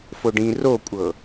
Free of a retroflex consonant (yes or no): no